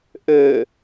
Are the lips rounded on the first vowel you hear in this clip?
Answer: yes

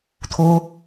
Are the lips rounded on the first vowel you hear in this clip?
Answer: yes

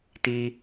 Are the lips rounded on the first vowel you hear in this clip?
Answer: no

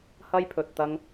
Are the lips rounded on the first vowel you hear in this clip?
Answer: no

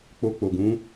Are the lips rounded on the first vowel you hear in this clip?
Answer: yes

